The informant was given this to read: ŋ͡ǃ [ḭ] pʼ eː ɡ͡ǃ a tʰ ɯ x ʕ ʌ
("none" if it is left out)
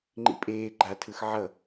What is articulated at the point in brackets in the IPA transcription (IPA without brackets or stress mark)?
ḭ